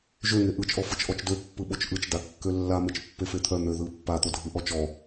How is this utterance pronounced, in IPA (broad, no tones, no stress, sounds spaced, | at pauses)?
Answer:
ʒ ø ŋ e ʔ ɯ t͡ʃ ʔ ɔ f ɯ t͡ʃ ʔ ɔ t͡ʃ d ø pː ɯ ɓ o t͡ʃ ʔ ɯ t͡ʃ d a kː ø lː a m e t͡ʃ pː e f e t̪ʰ œ n̪ ø ð ɯ pː a t̪ o dʱ ɯ ʔ ɔ t͡ʃ ɔ